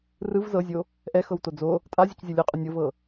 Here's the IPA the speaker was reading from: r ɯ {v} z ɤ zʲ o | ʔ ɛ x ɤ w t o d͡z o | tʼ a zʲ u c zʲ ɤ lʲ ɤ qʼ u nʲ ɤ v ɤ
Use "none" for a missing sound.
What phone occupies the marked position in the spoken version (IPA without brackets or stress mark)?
v